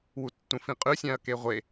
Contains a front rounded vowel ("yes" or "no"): no